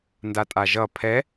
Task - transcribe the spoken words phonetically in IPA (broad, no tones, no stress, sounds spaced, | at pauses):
n d a tʼ a ʒ ʌ pʰ ɛ